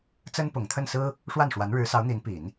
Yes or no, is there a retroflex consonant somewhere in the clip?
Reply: yes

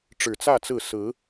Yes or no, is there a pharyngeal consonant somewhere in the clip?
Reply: no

